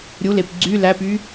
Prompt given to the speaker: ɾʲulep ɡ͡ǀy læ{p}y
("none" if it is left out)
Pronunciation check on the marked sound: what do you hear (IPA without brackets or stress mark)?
p